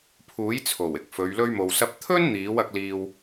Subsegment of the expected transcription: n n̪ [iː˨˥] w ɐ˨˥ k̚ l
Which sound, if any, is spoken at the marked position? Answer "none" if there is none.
iː˨˥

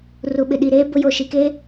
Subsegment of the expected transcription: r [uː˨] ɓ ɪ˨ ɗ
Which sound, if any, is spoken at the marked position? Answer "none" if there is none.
u˨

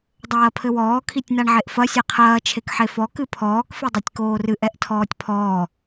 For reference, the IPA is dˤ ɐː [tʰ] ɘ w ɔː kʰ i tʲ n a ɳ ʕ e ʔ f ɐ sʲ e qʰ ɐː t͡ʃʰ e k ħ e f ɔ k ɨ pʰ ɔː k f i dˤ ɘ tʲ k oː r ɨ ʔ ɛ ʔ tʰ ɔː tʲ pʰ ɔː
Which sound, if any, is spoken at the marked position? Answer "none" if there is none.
pʰ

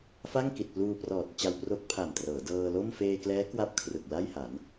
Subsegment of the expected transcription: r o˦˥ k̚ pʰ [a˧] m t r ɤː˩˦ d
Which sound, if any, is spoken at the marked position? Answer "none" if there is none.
a˨˩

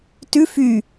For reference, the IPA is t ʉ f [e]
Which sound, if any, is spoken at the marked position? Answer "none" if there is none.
y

